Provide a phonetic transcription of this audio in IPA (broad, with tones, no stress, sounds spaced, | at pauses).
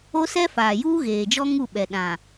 o˦ s ɛ˦ f aː˨ j uː˦ ɣ eː˨ d͡ʒ ɔ˦ ŋ u˦˨ ɓ ɛ˨ ɗ ã˨